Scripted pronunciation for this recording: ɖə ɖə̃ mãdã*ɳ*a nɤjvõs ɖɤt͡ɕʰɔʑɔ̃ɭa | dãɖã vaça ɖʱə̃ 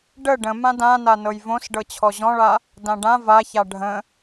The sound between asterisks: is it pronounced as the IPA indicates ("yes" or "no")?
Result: no